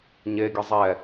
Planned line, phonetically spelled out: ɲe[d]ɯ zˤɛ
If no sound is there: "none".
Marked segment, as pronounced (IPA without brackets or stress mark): ɡʲ